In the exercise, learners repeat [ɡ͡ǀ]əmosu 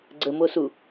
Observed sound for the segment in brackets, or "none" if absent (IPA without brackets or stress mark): ɡ͡ǀ